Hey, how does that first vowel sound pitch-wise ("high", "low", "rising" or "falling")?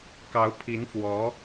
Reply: rising